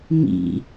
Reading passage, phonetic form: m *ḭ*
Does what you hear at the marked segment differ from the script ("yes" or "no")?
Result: no